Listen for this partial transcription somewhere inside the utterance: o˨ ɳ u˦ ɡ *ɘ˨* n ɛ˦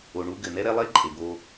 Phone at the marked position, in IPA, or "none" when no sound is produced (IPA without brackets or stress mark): ɘ˨